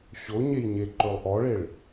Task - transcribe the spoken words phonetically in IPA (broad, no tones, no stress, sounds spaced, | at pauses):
ɕ o ɲ e j ɲ e ǃ ɵ lˠ ʔ ɔ ɭ e ɭ